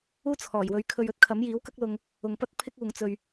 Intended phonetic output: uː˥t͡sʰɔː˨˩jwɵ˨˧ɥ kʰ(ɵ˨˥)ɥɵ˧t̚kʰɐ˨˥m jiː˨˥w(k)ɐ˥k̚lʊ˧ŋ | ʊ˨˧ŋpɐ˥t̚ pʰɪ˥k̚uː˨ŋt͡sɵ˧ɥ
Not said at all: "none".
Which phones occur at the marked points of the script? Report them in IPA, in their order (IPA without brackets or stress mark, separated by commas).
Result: ɵ˧, k